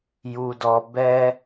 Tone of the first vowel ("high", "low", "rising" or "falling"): low